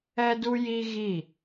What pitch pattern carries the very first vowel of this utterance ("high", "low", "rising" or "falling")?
high